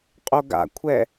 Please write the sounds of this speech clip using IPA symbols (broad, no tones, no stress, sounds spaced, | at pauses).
qʼ o ɡ a̰ kʷʰ ɛ